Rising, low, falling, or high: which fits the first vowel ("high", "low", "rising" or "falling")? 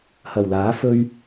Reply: low